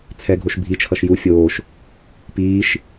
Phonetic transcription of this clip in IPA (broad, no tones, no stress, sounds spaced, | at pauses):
t͡sʰ ɛ ɡʱ o ʃ bʱ i t͡ʃʰ ʌ ʃ j u fʲ oː ʃ | p iː ʃ